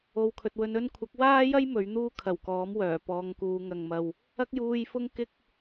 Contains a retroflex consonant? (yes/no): no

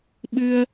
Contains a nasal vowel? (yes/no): no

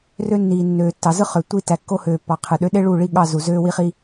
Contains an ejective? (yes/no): no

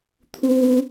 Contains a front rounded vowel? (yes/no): no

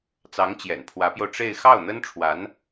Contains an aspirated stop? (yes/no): yes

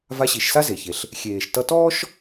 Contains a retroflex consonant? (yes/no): no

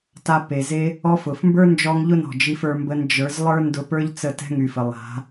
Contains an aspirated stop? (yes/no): no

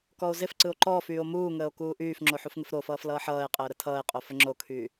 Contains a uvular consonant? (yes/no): yes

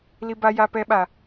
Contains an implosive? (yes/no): yes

